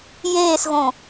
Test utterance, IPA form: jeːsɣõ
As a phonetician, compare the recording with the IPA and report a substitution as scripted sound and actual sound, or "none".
none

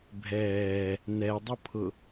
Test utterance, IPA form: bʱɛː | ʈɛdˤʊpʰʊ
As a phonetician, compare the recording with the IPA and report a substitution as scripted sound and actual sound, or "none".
ʈ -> n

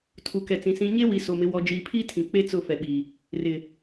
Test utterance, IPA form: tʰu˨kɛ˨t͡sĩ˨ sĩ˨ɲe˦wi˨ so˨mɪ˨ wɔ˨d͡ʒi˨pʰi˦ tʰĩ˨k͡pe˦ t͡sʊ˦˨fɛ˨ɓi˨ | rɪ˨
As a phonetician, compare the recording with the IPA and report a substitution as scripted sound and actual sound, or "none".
none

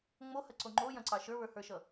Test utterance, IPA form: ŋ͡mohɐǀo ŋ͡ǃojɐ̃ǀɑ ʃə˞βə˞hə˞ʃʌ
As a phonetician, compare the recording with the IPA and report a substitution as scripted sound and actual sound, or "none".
none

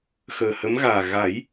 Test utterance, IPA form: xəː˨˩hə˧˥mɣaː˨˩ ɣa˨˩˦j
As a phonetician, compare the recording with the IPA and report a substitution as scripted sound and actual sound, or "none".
none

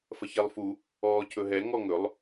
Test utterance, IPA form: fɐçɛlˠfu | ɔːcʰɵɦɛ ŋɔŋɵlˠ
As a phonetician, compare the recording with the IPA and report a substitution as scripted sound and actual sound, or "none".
none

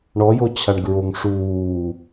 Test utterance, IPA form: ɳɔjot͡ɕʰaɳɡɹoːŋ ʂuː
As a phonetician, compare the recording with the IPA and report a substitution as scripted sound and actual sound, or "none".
oː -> o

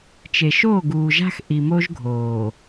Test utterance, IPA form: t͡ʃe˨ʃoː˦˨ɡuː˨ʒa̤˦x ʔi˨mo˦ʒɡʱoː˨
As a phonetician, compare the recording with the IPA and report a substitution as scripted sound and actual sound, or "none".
none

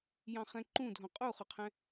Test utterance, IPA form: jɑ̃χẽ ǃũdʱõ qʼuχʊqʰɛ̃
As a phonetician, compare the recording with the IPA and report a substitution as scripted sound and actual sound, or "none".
ẽ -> ɛ̃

